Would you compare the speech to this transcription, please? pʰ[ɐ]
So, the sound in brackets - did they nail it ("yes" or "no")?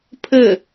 no